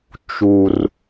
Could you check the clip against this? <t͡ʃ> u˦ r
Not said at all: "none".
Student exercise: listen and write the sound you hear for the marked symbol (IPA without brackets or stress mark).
t͡ʃ